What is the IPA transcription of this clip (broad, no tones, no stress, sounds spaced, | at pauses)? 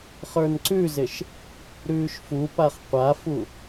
χ ə˞ n ǀ ʉ z ɪ ʃ | ɾ ʉː ʃ f u p a χ qʷ a f u